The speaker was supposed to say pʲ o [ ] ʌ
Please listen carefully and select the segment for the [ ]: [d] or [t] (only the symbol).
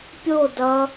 d